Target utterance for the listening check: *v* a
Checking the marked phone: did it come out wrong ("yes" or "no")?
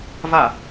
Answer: no